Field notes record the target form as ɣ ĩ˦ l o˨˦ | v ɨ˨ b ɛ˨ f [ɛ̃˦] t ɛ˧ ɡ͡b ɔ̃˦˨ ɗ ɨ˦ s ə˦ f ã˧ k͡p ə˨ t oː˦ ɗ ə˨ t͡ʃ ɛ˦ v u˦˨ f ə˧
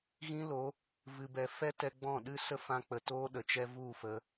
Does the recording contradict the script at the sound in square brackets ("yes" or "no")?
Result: yes